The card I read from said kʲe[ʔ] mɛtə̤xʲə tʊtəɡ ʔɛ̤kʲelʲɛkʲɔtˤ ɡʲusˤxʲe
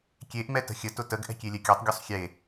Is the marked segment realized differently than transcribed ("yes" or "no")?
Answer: no